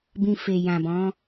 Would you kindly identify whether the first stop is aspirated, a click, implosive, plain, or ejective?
plain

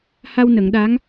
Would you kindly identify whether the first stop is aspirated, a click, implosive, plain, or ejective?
implosive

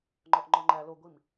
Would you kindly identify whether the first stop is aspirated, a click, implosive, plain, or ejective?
click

